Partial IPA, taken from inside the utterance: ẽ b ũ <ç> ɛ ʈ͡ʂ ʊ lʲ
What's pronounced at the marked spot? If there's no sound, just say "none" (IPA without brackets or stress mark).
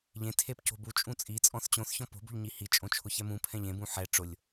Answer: ħ